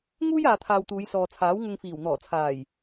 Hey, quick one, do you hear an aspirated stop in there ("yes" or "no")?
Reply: yes